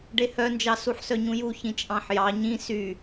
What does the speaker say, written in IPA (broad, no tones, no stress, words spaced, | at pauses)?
ɖehœnd͡ʒɑ suħsœɲũju çĩt͡ʃʼɑ̃ħjɑ ɲĩ sy